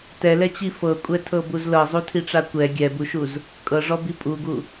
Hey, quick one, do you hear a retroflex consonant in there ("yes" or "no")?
yes